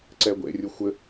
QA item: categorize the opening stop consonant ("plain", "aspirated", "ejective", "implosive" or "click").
click